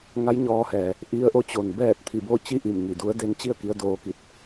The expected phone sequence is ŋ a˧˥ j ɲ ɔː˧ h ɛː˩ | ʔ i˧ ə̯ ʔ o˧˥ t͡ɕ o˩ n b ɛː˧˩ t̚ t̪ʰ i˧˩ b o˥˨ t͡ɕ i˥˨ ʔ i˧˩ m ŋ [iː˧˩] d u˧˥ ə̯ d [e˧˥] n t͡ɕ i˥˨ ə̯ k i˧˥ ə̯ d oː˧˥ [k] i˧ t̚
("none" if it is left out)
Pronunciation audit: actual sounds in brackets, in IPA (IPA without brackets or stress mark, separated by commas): i˧˩, e˧˥, k